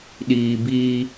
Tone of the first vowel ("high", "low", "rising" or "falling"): low